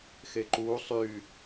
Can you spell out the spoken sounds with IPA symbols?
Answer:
x e ǃ uː sˤ yː

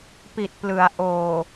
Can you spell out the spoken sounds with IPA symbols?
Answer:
p i˨˩ t̚ p l ɯ˩˦ a̯ ʔ oː˨˩

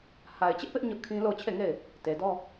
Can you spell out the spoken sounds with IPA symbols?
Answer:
h a˨ ɪ̯ t͡ɕ ɪ˦ ʔ p ɪ˦ ʔ ɲ ʊ˦ ʔ kʰ ĩ˦ l o˦˨ ʊ̯ t͡ɕʰ e˦˨ ŋ e˦˨ ɪ̯ | t e˨ d ɔ˦

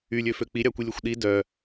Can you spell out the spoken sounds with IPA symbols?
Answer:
y lʲ ø f ø k͡p i ɾʲ ɑ kʷ i lʲ ø xʷ ɗ i d œ

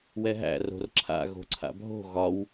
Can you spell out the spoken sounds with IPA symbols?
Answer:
w ɛ ɦ æ̰ r o̤ r ǁʰ a̰ ɣ o̤ ǀʰ a̰ bʱ o̤ ɣ ɒ w

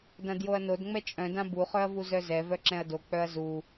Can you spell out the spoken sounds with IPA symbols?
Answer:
d ã d j o ɐ̯ n o d ŋ͡m ɛ t͡ʃʼ œ̃ d ã b u χ œ ɐ̯ v u z œ z ɛ v œ ǁ ɛ̃ ɐ̯ d o k͡p œ ɐ̯ z u

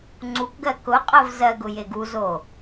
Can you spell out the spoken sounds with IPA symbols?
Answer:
ŋ͡ǀ u k ɡ ɜ k ʊ qʼ ɜ v z ɜ ɡ ʊ j e ɡ u z o

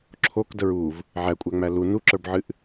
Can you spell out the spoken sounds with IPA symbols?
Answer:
ǁʰ o k d ə ɹ u v | ʕ æ kʷʼ æ ŋ͡m æ l u n u ǁ ə˞ b ʕ ɨ ʔ

